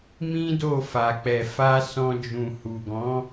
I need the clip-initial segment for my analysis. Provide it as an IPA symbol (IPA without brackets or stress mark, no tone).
m